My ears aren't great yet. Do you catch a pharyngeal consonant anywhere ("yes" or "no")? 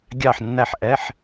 yes